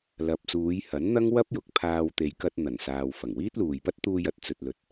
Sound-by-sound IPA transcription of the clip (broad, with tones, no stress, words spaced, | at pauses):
lɐ˨p̚suː˨˧jhɐ˨˥nn̪ɐ˥ŋ wɐ˥p̚jʊ˨k̚pʰaː˧w t̪e˨jkɐ˧t̚ n̪ɐ˨˩nsaː˨w fɐ˨˩ŋwiː˥t̚luː˨jpɐ˥t̚ t̪uː˧jɐ˨t̚t͡sɵ˨t̚lɵ˨t̚